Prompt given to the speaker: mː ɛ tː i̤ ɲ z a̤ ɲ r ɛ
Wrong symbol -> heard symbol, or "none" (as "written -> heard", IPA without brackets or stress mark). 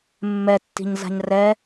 none